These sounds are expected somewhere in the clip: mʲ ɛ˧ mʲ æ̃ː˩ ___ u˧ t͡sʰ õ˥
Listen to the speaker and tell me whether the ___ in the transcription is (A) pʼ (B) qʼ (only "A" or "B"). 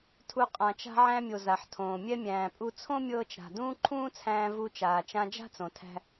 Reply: A